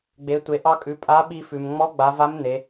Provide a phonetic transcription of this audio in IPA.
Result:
ɡ͡b e˩˧ tʷ e˩˧ ʔ ɑ˧ kʼ ʉ˩˧ pʼ a˧˥ ɓ i˧ f ʉ˩ m ŋ͡m ɔ˧˥ ɡ͡b a˩˧ v a˧˥ m n̪ e˩˧

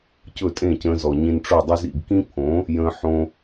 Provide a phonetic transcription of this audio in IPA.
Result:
c ɵ˥˩ tʼ ẽ˥˩ c ə̃ː˧ z ɔ˩ ɲ ĩ˧ n ʈ͡ʂ o˥˩ dˤ ɵ˥ z ḭ˥˩ ɡ k ĩ˥ pʰ õ˩˥ | j ə̃ː˧ ħ õ˧

